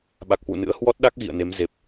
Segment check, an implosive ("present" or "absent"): present